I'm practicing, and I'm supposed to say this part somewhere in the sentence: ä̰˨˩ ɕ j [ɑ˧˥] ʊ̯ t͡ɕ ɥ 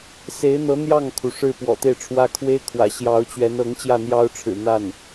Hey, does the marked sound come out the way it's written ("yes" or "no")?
yes